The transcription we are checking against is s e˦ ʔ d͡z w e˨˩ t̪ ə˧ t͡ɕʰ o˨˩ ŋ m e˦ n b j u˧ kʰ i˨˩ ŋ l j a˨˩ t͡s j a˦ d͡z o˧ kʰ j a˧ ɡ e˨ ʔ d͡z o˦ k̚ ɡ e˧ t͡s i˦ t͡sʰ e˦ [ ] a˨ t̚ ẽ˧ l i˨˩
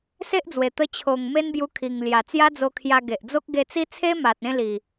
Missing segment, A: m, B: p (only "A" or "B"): A